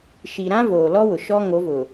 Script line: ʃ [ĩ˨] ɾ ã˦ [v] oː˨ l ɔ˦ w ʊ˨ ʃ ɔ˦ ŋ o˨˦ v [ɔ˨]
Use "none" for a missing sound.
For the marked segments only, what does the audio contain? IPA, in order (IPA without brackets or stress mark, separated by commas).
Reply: i˨, v, ʊ˨